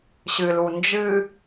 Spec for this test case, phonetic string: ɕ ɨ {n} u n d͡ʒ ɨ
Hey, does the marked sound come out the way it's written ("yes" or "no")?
no